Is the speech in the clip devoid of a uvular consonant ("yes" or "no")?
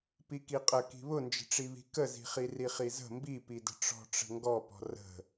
no